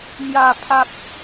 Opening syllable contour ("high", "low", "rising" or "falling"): low